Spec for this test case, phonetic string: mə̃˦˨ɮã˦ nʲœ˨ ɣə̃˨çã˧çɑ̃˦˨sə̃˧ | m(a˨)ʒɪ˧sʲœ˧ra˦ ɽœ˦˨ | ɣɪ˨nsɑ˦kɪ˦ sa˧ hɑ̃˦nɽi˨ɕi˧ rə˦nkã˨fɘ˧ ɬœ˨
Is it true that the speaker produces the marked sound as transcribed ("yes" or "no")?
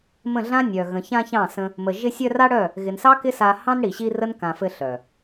no